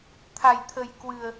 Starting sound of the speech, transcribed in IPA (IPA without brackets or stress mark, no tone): t̪ʰ